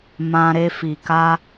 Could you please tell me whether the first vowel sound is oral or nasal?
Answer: nasal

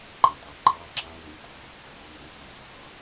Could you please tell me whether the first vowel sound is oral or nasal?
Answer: nasal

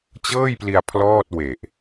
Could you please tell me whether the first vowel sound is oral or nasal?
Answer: oral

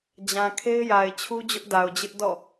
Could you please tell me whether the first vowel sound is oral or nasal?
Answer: nasal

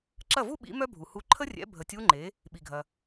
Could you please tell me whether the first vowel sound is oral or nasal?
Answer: oral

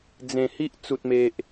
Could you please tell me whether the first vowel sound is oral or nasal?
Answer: nasal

